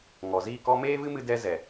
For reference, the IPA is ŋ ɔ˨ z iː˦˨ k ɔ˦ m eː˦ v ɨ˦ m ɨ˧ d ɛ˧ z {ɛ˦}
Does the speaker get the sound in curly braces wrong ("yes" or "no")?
yes